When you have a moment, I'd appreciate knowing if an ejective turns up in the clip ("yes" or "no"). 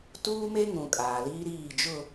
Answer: yes